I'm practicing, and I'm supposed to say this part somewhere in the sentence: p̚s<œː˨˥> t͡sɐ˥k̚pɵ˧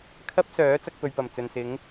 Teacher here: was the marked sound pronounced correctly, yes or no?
yes